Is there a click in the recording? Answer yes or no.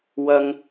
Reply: no